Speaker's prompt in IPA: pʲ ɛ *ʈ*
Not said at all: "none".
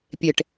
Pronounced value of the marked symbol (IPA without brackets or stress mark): ʈ